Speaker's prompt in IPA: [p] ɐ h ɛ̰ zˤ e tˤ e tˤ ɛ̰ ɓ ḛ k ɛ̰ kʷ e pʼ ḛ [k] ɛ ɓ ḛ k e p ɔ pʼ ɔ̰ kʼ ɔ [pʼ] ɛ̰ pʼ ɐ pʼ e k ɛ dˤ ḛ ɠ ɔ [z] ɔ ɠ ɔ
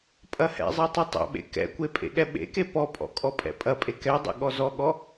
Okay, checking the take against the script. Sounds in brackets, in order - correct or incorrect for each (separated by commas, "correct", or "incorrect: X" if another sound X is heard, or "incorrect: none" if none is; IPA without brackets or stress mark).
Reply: incorrect: pʼ, incorrect: ɠ, correct, correct